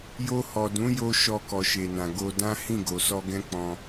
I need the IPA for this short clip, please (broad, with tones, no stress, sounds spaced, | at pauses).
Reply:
j o˧ h ɔ˨ d ũ˨˦ j o˧ ʃ ɔ˧ k ɔ˨ ʃ e˨ n ã˨ ɡ o˧ d ã˦ h ĩ˦˨ ɡ o˨ s ɔ˧ ɡ ɛ̃˦ k͡p ɔ̃˧